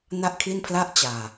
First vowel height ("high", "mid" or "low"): low